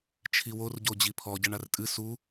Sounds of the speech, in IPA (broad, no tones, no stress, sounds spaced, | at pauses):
t͡ʃʰ i w o r ɟ o d͡ʑ i pʰ ɔ ɟ ɐ ɳ a r tʼ ɨ s u